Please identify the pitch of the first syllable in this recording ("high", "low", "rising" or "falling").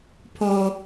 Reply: low